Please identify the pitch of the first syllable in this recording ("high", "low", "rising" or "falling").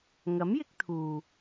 rising